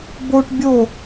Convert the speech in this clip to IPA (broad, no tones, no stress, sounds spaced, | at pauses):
b o ʈ bʲ o